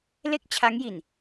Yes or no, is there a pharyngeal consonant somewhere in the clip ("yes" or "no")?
no